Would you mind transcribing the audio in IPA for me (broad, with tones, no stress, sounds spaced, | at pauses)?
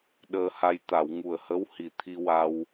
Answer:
ɗ əː˧ h a˧ j t̪ a˨˩˨ w ŋ u˨˩ ə̯ h ə˧˥ w h i˨˩ t̪ʰ i˧ w a˧ w